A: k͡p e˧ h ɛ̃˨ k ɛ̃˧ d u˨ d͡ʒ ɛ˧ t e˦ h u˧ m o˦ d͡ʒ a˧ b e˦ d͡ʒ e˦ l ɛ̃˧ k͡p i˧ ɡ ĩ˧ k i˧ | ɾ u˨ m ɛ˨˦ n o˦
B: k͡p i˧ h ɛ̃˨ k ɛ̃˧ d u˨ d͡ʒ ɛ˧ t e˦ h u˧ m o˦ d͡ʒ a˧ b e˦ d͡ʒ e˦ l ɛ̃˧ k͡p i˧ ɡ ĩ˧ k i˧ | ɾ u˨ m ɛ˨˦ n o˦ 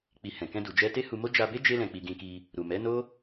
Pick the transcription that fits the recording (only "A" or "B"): B